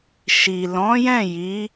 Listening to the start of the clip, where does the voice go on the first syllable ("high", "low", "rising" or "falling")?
low